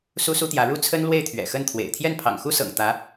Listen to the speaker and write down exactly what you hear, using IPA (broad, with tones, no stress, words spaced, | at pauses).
su˥su˥t̪jä˧˥ ɻu˥˩t͡sʰə˥n lwe˥˩ɪ̯t̪ʰɥɛ̰˨˩ xə˥˩nt̪ʰwḛ˨˩ɪ̯ t̪ʰjɛ˥˩npʰɑ̰˨˩ŋxu˥sɤ̰˨˩ŋ t̪ä˧˥